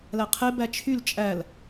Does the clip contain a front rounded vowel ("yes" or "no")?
yes